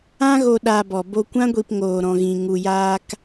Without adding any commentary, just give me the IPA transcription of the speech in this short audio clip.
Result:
ã˦ ɣ o˧ ɗ aː˧ b ɔ˨ b o˧ kʷ ã˦ ɡʷ i˧ p ŋ oː˧ ɾ ɔ̃˧ ɣ ĩ˧ ŋ u˧ j aː˦ k

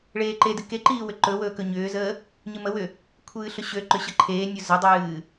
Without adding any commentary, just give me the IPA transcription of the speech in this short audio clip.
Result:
ɭ eː ǃ e d ɨ k e ǃ iː w ʏ ǃ ɵ w ɵː k ɵ ɲ ʏː z əː | ɲ ɨ m ə w ʏ | kʷʰ ɨː ɬ ɵ ɕ ø ǃ ʏ ɕ ə ǃʰ eː nʲ ɵ z ə dˤ ɨː

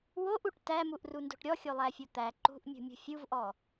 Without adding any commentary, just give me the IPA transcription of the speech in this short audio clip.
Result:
w o ʔ u ʈ t æ m u ʔ r u n d o̤ ʈ ɾʲ ɔ xʲ o lˠ æ fʲ o t̪ æ ǃ ṳ ʔ mʲ ṳ mʲ ṳ fʲ u v ʔ ɔ

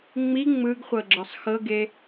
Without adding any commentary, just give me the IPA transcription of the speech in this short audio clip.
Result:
ŋ͡m i ŋ͡m ɯ ɡ χʷ ɤ ɡ͡ǁ ɤ sˤ x ɤ ɡ e

